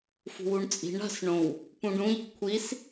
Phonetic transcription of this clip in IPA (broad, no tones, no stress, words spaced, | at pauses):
fṳwuɳt͡sʼi̤ɳ a̤sɳõw | pũɖũʎi̤ kʷʰis